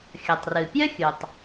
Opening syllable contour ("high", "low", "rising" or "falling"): low